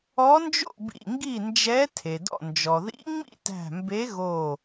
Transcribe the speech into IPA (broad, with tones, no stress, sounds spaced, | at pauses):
ɔ˧˥ n d͡ʒ o̰˥˨ b ḭ˧˩ ŋ ɡ i˥˨ n d͡ʒ ɛ˧˥ tʰ e˩ d ɔ̰˧˩ n d͡ʒ ɔ˩ ð ḭ˧˥ ŋ͡m ḭ˥˨ t æ̤˧˩ m b e˧˥ ɣ o˧˩